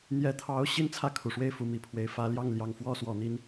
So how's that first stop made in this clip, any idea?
aspirated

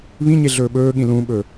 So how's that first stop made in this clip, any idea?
implosive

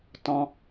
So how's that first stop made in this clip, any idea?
plain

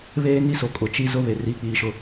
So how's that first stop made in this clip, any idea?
ejective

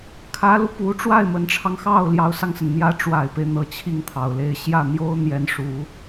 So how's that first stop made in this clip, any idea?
aspirated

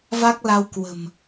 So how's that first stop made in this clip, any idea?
plain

